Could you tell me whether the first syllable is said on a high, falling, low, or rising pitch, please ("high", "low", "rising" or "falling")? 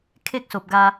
high